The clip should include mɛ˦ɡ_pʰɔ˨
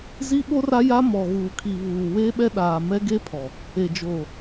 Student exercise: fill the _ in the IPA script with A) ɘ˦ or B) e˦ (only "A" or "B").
B